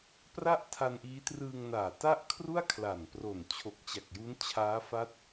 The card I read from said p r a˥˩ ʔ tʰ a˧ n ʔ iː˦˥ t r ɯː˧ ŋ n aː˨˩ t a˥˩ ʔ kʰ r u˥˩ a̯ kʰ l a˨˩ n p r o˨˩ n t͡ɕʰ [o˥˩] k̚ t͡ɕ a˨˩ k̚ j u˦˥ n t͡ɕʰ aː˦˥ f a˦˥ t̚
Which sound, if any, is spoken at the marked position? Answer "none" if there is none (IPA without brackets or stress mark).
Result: o˨˩